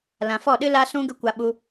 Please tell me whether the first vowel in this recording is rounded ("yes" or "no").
no